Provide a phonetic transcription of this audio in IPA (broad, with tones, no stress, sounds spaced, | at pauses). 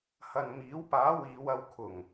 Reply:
h ɐ˨ n m iː˨˥ w p aː˨˥ w iː˨˧ w ɐ˧ w kʰ ʊ˨˩ ŋ